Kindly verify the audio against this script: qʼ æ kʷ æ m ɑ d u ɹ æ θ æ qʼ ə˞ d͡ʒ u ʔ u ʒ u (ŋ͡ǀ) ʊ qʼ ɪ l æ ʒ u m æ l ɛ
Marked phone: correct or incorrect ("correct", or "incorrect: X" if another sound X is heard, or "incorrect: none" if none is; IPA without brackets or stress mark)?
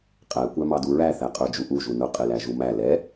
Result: incorrect: n